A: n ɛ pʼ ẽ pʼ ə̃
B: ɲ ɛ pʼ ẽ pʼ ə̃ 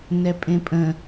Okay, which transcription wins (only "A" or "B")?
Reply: A